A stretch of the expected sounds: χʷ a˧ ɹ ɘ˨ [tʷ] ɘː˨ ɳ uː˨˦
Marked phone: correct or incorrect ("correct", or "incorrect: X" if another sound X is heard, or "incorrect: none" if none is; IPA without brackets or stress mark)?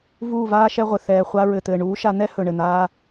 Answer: incorrect: t̪